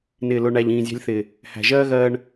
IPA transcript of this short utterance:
nɪː˨ lʊ˨ɳæ˨ʎ ĩː˨zʲæ̤˧lʲθɪː˨ | hæ̤˨ʒɜː˦ ɣɜː˧ɳ

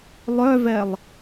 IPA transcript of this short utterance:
lˠœvɛlˠ

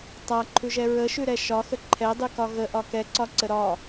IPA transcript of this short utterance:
tˤaǃʰʉʒɛ ɹəʃʉɾɛ ʃɒxə ǃʰɛdˤʉkɒ ɣəʔɒ kɛǀɒǀə ɾɒ

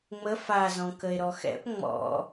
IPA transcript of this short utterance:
ŋ͡mə fazɔ̃ kəe̯ɾɔxɛ̰p ŋ͡mɔ̰

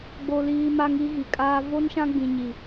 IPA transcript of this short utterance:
ɡ͡bo˦liː˦ ma˦ŋi˦ɣi˨kʼaː˦ vo˦nʃã˦ɡ͡bĩ˨ ɲi˨

